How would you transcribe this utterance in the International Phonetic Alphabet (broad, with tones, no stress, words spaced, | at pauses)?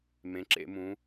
mẽ˩˧ǁḛ˧˩˧mũ˩˧